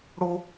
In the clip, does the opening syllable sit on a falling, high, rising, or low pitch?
high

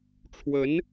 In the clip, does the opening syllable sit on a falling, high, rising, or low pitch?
rising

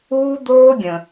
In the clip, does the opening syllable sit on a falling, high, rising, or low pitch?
high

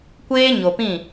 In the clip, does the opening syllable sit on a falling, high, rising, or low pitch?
high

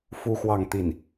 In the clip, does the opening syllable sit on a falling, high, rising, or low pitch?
high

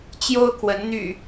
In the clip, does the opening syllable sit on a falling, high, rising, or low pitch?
high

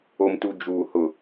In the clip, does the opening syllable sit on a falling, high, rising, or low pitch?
low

